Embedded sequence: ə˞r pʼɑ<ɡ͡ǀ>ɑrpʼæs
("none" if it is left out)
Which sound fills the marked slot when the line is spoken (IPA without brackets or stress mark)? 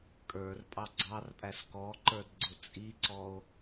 ɡ͡ǀ